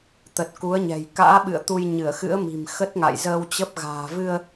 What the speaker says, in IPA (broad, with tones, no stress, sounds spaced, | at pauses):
t̪ ə˨˩ t̚ k u˨˦ ə̯ ɲ ɛ̤˨˩ j k a̰ː˧˥ ɓ ɨ̰˧˨ ə̯ t̪ u˧ j ɲ ɨ˧˩ ə̯ x ɨ̰˧˥ ə̯ m i̤˨˩ m x ə˦˥ t̚ ŋ a̰˧˨ j z əː˧ w t͡ɕ ə˦˥ p̚ ɣ a̤ː˨˩ v ɨ˧ ə̯